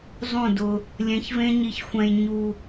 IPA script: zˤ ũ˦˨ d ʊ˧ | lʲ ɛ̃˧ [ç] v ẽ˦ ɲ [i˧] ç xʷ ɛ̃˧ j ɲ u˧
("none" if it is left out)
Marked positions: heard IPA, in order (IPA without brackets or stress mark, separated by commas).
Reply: ç, i˧